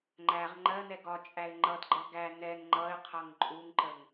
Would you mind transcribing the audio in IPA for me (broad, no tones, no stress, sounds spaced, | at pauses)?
ŋ͡ǃ æ ʁ ŋ͡ǃ ɜ n ɛ ɡ ɒ t͡ʃʼ æ ɪ̯ ŋ͡ǃ ʌ d ɡ͡ǃ ʌ ɡ æ n ɛ ŋ ŋ͡ǃ ʌ ɪ̯ qʰ ʌ ŋ ǃʼ u ŋ ǃ ə ŋ